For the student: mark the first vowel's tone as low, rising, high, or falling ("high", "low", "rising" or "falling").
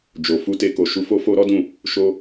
low